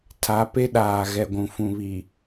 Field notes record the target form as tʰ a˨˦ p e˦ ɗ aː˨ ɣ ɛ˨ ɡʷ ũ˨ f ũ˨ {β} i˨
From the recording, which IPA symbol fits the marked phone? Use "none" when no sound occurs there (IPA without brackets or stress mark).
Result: β